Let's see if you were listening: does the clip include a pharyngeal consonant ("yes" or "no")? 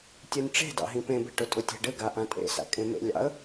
no